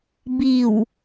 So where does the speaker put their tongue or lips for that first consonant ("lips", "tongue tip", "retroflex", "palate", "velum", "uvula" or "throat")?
lips